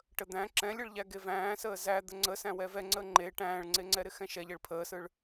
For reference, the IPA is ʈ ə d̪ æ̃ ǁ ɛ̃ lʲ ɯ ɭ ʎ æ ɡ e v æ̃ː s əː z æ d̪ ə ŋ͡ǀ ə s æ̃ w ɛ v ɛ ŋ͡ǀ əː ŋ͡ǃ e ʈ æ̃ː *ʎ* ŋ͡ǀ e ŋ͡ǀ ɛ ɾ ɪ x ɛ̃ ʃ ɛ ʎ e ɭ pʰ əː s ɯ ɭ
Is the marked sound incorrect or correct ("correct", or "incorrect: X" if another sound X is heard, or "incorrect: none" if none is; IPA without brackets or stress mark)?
incorrect: ɭ